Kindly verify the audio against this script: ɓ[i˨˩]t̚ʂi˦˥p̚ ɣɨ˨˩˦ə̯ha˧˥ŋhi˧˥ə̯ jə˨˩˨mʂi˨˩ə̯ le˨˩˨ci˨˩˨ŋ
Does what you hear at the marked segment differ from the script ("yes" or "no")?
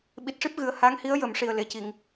no